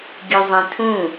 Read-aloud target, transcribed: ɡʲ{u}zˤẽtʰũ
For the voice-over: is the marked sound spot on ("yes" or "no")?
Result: yes